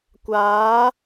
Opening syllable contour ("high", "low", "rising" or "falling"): rising